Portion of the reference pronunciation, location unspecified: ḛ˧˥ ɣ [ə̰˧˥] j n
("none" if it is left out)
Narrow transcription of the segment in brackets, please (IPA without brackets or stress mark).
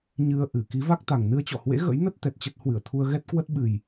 ə̰˧˥